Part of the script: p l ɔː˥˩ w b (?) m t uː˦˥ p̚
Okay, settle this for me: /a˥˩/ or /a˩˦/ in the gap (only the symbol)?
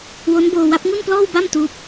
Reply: a˥˩